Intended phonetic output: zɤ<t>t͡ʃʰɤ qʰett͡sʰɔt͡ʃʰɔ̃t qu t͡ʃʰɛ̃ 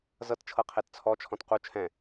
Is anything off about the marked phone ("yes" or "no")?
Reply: no